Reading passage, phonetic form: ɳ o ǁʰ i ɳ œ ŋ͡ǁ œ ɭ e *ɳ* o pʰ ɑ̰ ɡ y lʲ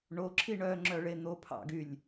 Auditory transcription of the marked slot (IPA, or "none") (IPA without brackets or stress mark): n̪